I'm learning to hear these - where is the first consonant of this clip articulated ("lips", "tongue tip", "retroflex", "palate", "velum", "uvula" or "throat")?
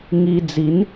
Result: velum